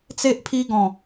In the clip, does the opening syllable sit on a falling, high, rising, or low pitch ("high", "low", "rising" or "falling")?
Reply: high